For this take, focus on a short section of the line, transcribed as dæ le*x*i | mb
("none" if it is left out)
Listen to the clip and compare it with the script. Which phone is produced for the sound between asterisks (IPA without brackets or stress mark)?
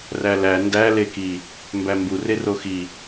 k